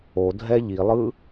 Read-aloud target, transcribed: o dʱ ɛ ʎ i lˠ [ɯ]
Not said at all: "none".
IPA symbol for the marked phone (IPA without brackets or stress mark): ɯ